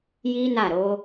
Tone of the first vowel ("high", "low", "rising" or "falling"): high